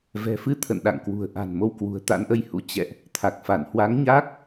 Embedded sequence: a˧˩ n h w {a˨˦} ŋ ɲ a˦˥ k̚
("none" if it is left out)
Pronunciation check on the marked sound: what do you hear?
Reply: a˨˦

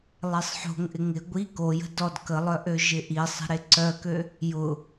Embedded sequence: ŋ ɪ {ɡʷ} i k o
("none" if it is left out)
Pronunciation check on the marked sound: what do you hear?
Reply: ɡʷ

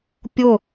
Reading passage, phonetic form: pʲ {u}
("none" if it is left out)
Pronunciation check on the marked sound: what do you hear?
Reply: ʊ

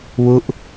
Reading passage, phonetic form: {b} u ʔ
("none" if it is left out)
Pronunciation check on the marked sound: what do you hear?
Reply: w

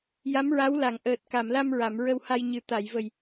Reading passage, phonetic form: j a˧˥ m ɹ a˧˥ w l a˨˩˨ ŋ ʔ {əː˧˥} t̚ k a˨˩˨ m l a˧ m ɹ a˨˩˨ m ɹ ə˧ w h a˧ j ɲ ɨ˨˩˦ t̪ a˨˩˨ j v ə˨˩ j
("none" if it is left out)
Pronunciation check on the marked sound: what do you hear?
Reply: əː˨˩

